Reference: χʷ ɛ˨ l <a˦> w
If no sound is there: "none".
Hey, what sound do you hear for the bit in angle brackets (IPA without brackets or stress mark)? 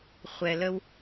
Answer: ə˦